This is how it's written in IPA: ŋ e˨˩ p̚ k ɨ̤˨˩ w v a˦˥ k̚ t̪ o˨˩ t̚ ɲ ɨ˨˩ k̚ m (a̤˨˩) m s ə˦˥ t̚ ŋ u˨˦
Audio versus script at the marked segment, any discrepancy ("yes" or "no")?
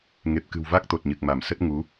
yes